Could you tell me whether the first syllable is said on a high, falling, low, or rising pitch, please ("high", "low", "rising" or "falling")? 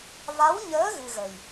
rising